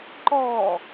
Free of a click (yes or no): no